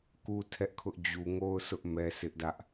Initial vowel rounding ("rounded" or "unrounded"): rounded